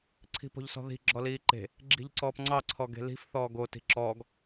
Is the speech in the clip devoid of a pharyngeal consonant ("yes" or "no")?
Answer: yes